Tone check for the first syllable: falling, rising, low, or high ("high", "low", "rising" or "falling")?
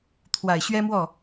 low